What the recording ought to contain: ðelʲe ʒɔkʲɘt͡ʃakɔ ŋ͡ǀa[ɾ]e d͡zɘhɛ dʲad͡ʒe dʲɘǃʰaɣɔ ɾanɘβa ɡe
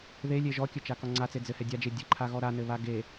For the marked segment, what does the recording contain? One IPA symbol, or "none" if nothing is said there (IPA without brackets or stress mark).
t͡s